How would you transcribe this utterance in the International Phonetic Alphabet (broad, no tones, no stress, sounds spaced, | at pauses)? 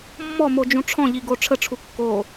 mː ɔ m o d͡ʒ ũ ʈ͡ʂʰ ɔ̃ ʎ i ɡ o ʈ͡ʂʰ ə ʈ͡ʂʰ u kː o